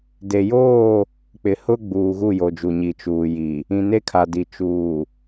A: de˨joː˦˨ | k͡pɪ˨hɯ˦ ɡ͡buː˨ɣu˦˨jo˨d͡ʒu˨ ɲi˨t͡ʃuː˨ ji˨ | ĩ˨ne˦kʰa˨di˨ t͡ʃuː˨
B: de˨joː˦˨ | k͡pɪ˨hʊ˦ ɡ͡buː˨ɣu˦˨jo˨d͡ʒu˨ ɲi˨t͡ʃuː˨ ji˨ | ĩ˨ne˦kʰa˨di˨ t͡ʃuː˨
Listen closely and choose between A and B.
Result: B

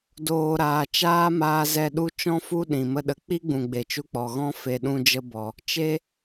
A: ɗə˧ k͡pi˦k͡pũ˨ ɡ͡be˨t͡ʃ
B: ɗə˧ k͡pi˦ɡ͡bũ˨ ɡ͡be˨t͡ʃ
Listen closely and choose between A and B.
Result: B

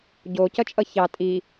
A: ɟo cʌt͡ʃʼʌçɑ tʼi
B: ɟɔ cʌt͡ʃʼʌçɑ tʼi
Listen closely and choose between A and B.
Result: A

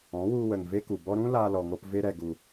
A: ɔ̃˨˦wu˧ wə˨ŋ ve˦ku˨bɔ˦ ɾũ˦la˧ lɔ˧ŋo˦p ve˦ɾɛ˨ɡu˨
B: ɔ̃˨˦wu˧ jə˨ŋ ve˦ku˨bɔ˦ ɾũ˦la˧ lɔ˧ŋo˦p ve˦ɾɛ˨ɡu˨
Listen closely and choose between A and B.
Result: A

